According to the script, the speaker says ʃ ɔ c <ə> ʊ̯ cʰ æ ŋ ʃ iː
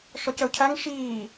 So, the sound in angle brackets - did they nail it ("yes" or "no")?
yes